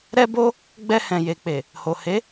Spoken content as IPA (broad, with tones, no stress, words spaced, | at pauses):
ɾɛ˦bo˦ | ɡ͡bɛ˧hɛ̃˨je˨k͡pe˨ | ho˨he˨˦